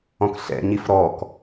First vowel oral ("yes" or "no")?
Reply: no